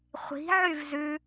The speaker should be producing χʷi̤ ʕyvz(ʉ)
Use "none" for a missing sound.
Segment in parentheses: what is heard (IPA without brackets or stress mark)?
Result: ʉ